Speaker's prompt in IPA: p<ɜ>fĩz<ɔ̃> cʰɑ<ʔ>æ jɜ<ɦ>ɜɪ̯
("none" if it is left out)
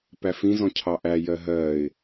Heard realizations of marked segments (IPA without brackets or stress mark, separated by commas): æ, ɔ̃, ʔ, ɦ